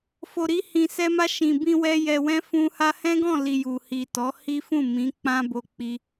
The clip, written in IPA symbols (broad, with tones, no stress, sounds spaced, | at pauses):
f o˨ ɾ i˧ h ĩ˨ s ɛ˧ m a˧ ʃ ĩ˨ b ĩ˧ w ɛ˧ j ɛ˨ w ɛ̃˧ f ũ˧ h a˧ h ɛ̃˦ ɡ ɔ̃˦˨ l i˨ j u˨ h i˨ t ɔ˨˦ h i˦ f ũ˦˨ m ĩ˨˦ k͡p ã˦ b o˧ k͡p i˧